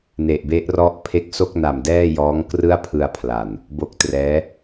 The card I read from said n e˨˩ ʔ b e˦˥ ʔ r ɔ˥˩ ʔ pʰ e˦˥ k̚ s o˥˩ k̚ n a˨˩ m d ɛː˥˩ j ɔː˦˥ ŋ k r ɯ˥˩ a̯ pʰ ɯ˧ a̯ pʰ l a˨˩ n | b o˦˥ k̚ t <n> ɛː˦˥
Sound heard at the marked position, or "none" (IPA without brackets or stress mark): r